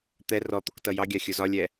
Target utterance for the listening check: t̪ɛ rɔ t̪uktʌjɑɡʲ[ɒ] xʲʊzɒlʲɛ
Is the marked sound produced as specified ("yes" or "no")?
no